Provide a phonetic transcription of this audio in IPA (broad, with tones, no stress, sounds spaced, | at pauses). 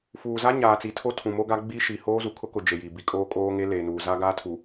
f uː˨ z a˦ ɲ aː˨ t͡s i˨ tʰ o˦ tʰ ũ˨ m o˦ ɡ a˦ ɡ͡b i˦ ʃ i˨ h oː˦ z u˨ kʰ ʊ˦ k ʊ˨ d͡ʒ e˨ j i˨ b i˨ kʼ oː˦ kʼ oː˦ ŋ e˦ l e˨ n uː˨ z a˦ ɡ a˦ tʰ u˨